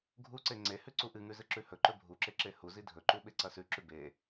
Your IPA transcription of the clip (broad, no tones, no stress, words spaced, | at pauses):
ɡʱuǀe ŋ͡ǀehʉ ǀuʔɨŋʉ zɨǁʉhɵǃɵ bʱuǁe ǁehuzi dʱɵǃu ɓeǀɐsʉǁʉ be